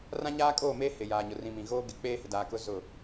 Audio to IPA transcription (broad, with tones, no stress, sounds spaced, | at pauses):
r ã˦ ɲ aː˦ kʼ oː˦˨ m eː˦ h ɪ˨ j aː˨ ɲ ʊ˨ r ĩ˨ m ĩ˨ ɣ oː˦ ɡ ɪ˨˦ k͡p eː˦ h ɪ˨ d aː˨ k ʊ˦ z ʊ˦˨